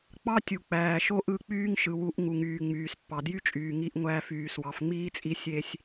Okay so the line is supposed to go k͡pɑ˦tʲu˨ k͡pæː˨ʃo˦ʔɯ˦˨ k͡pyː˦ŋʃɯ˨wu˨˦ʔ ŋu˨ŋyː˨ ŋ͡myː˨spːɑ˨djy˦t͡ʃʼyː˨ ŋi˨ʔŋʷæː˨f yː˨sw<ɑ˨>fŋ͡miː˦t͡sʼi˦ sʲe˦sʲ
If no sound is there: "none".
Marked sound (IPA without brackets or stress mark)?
ɑ˨